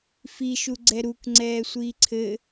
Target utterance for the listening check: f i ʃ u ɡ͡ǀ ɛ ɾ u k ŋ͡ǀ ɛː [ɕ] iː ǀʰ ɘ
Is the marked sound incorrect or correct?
incorrect